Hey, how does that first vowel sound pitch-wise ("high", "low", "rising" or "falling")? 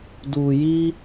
low